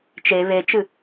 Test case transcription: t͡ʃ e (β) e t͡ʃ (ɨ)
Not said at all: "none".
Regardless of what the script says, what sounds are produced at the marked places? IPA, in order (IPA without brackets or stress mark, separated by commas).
β, ɨ